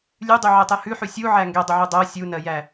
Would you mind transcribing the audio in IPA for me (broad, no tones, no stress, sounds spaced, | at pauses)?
lʲ ʉ dˤ ʉ ʕ ɛ tˤ ɛ h ʉ ħ ʉ sʲ u ʕ æ ŋ ɡ ɛ dˤ ə ʕ ʉ dˤ ɜ sʲ u n ɜ j æ